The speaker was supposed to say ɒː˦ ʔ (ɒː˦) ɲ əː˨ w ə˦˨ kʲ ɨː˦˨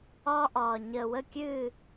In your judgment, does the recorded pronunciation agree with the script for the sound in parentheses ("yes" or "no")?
no